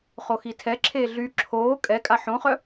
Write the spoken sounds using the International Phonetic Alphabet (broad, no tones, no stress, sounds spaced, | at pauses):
χ o x i tʰ ɛ ǁʰ eː ɮ y ǁʰ oː kʼ ɛ kʼ a ħ õ χ œ